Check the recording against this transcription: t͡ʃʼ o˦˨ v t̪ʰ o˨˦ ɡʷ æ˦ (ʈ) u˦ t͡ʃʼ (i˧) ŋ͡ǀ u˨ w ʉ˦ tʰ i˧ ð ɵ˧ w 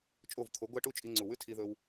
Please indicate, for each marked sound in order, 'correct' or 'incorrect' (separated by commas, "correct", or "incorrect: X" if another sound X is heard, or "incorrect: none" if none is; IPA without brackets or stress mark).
correct, correct